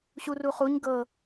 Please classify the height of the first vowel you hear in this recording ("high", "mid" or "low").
high